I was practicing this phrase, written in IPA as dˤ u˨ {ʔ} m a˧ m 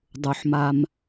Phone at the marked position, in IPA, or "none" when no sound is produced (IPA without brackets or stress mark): ħ